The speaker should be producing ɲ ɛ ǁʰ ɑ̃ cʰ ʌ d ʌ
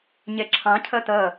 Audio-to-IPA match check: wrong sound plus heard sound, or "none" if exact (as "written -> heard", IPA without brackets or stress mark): d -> t